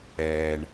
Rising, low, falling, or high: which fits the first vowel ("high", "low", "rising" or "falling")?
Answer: low